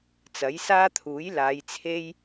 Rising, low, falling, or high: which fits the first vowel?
rising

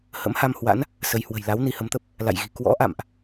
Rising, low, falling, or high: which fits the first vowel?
rising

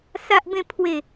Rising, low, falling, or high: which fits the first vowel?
high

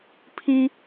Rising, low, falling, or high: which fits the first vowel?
high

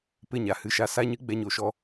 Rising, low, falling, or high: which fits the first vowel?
falling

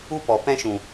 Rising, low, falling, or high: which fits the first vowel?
high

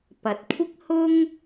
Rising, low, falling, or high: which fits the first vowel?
low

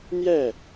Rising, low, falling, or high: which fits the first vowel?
falling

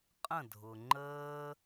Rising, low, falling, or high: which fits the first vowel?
falling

